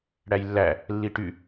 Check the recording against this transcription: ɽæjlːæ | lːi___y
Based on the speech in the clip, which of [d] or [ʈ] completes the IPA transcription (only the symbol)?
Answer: ʈ